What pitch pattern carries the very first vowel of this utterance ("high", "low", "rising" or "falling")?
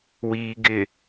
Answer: low